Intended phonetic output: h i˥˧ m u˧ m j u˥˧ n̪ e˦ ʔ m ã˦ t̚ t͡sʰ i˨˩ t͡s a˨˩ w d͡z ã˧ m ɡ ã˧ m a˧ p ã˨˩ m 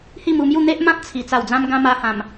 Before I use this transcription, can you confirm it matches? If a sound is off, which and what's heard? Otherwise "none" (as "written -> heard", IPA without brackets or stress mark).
p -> h